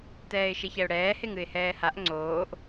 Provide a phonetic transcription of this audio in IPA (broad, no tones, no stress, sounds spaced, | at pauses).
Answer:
t ɛː ɪ̯ ʃ e ç ɛ ʊ̯ ɽ ɛː h e ŋ ɨ ɪ̯ h ɛː h a ʔ ŋ͡ǀ oː ʔ